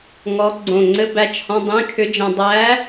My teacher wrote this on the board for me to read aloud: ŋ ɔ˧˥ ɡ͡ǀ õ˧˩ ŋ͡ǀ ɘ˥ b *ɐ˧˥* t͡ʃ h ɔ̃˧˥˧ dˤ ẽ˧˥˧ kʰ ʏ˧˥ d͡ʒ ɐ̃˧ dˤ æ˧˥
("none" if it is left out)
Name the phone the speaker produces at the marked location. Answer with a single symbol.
æ˧˥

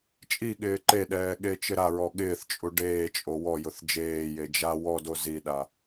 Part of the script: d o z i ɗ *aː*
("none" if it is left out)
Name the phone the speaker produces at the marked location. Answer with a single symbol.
a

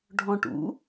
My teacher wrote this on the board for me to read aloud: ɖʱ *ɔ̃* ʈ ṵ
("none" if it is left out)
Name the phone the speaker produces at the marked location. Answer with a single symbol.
ɔ̃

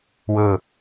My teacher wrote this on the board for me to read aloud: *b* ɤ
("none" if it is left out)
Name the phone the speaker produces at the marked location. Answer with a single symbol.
w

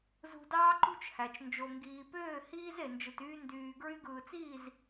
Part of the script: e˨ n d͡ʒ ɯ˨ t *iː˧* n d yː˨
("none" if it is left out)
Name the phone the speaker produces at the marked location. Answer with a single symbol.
yː˧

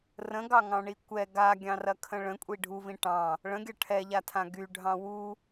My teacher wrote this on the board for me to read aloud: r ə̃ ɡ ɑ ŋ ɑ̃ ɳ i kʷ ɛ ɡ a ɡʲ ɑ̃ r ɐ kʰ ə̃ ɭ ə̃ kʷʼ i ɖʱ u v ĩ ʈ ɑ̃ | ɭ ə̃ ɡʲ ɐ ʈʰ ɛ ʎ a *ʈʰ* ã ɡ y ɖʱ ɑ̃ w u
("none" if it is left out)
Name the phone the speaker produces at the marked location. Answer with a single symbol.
tʰ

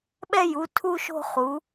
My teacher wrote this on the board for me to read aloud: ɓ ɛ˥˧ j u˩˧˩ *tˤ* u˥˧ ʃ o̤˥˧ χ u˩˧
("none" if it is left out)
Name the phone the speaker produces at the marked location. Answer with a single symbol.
tʰ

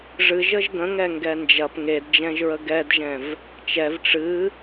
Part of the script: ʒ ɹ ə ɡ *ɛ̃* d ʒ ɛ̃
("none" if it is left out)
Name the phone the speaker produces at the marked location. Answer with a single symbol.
ɛ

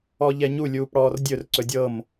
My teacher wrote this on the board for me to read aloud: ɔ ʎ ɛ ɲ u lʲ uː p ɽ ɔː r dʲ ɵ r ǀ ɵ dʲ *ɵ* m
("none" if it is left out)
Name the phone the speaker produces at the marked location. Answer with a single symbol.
ɤ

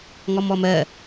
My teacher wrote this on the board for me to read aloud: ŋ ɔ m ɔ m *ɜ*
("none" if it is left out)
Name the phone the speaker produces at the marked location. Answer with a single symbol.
ɜ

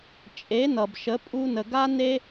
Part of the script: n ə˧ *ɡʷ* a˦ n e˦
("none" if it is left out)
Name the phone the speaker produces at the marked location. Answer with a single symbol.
ɡ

